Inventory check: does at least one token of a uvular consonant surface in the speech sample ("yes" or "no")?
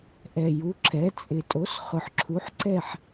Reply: yes